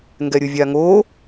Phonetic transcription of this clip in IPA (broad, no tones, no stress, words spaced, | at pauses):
ŋɡɛɾʲɯvʲaŋo